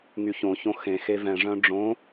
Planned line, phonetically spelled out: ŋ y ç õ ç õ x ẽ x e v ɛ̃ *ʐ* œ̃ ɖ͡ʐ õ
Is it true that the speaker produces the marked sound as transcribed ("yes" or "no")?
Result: yes